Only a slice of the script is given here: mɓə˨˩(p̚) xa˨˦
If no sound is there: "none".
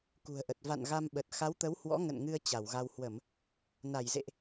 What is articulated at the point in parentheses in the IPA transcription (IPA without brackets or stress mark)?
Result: t̚